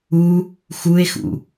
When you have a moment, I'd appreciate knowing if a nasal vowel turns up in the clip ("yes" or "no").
no